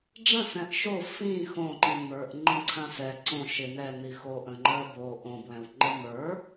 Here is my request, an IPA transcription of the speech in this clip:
ɖ͡ʐə̃sɛ̃ʔ ʃo fĩ xõǃĩ mə˞ʔ ŋ͡ǃĩǀʰãsɛ ǀõ ʃɪnɛni xoʔə̃ ŋ͡ǃɜbo ʔõbwɛ̃wŋ͡ǃə mə˞

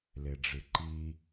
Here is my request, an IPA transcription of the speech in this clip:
leɖ͡ʐɨǃi

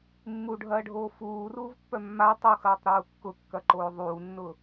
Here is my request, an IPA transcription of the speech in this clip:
mːuɖʱɐːɖʱoː fuːruːvpːœ mːa tˤuxɐːtˤɾuː kːʊkːɐǃoː ðˤuːnːʊ

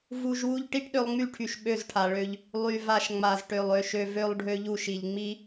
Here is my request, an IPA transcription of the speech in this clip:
vu˧ʒwu˦ʎ ʈi˦ʈɗø˧lˠŋ͡my˦˨ʈʰy˨ʃ ɓø˦˨zʈʰa˨ɭø˧ʎ | lˠy˨ va˧ʃ ŋ͡ma˨zʈø˨lˠ ø˧ʃø˧ vø˧lˠɖʱø˧ʎu˧ʃi˨ʎ ŋ͡mi˦

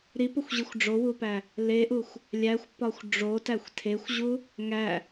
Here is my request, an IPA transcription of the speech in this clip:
ɾipoxʷʑixʷ ɖ͡ʐowupæ | leʔuxʷ | lʲæxʷpɒxʷ ɖ͡ʐotæxʷ tʰexʷʑu | ŋæ

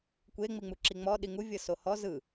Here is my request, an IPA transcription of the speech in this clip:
kʷe ŋ͡miŋ͡muǁiŋ͡mɔ ɗiŋu vʲɤsohɔ zɯ

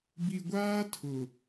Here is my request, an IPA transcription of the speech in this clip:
bi˨ɡʷaː˦ tʰʊ˨

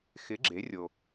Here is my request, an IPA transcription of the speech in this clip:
xɪ˩˥ɡ͡ǁe˩˥rʲo˩

